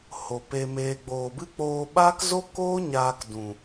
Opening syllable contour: low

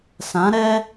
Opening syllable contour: rising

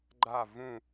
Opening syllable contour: falling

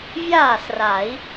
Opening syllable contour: falling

